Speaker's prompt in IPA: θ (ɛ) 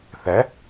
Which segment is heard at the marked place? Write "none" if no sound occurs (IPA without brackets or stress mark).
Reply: ɛ